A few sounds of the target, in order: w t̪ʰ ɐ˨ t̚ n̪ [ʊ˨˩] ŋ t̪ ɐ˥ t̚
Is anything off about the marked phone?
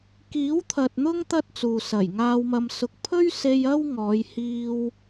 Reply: yes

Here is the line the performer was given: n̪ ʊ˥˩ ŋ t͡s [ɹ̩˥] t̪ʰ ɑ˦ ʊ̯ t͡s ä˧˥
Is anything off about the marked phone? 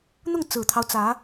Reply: yes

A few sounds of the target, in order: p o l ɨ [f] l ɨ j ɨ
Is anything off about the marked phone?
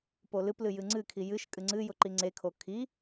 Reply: yes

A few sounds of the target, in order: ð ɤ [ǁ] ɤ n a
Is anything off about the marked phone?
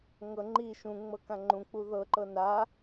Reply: yes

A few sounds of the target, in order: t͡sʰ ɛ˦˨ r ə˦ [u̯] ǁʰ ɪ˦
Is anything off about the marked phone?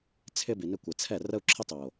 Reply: no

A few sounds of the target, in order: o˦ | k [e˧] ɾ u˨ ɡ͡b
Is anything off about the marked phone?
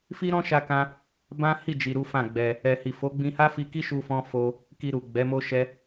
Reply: yes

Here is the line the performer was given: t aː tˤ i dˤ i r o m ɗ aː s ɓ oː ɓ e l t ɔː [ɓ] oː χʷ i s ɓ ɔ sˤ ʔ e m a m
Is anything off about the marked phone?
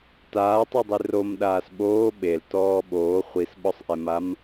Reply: no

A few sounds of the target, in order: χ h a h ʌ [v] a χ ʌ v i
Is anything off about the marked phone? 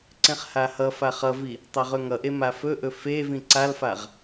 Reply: yes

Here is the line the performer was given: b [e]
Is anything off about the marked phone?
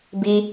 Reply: yes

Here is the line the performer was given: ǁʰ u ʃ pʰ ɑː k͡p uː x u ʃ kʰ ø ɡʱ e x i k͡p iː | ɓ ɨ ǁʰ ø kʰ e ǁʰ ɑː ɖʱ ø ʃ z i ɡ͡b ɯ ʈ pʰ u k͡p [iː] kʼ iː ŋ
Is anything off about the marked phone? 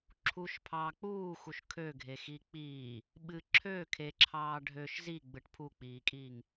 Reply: no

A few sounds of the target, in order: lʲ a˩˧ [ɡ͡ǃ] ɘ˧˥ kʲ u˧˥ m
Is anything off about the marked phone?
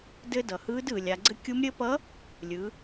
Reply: yes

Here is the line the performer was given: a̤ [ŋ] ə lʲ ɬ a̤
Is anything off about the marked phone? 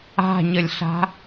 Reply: yes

